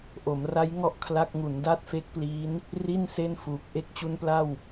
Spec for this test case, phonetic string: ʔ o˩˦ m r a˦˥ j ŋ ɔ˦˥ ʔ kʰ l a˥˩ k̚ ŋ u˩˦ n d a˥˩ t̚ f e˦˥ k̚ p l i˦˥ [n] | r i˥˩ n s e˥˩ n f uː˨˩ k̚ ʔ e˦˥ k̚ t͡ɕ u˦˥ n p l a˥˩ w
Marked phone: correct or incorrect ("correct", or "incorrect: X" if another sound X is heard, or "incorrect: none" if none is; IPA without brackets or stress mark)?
correct